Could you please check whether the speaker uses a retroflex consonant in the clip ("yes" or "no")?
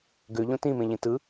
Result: no